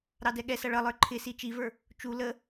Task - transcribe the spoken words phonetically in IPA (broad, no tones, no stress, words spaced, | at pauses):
ɾɑdɛɠɛsʌ ɭʌlˠə˞ ǃʰɪsi t͡ʃivə˞ | t͡ʃu lə